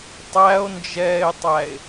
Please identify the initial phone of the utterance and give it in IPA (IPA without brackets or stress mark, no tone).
tˤ